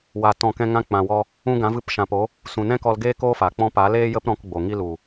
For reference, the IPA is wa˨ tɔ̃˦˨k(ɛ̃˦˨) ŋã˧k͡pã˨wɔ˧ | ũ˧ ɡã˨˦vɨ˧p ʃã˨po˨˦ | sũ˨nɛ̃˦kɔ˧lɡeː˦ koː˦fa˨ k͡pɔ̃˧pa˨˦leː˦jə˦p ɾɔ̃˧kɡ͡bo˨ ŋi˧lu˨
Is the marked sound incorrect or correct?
incorrect